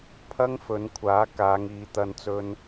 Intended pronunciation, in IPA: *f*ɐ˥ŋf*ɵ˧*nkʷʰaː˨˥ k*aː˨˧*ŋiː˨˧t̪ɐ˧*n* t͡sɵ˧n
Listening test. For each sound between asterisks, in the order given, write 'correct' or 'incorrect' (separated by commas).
incorrect, incorrect, correct, correct